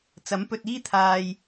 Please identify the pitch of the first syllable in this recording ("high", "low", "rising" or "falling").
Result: rising